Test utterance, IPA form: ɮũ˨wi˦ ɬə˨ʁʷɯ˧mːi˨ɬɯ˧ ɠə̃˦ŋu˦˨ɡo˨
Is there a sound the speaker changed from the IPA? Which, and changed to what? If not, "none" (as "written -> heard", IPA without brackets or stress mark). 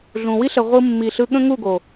none